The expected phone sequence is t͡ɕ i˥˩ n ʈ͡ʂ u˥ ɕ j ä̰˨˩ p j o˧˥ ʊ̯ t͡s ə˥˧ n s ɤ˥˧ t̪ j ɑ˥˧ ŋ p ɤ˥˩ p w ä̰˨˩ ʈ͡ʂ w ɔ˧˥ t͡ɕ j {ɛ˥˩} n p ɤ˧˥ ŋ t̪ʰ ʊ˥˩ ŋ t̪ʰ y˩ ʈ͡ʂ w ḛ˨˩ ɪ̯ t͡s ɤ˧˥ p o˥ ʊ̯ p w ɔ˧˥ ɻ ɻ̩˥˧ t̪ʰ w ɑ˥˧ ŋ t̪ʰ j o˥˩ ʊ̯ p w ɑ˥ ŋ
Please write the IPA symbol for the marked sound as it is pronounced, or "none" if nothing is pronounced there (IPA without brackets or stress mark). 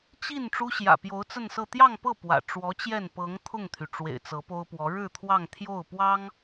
ɛ˥˩